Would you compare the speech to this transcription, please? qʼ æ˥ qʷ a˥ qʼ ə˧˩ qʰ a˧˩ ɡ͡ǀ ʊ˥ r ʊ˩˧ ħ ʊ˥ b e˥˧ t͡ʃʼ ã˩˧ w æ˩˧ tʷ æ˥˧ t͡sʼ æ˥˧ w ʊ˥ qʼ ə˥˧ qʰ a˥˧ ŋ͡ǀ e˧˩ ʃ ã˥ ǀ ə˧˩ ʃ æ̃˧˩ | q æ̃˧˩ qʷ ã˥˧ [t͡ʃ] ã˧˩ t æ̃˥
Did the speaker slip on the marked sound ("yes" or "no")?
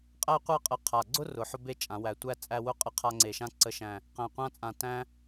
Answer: yes